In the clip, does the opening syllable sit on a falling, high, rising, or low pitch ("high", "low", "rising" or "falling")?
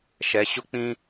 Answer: rising